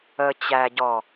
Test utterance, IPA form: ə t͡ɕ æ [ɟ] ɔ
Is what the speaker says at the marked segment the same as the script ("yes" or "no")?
yes